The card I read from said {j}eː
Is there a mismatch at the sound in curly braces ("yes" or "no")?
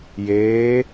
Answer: no